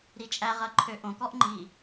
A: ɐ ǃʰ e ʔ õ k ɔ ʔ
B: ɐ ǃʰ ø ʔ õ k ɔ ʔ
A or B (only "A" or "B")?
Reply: B